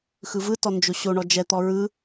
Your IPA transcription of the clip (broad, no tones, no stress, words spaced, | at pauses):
xɯvɯtɔ nd͡ʒoɕoɳɔ d͡ʒɛt̪ɔ ɹɯ